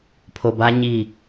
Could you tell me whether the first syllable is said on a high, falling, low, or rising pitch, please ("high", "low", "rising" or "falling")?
low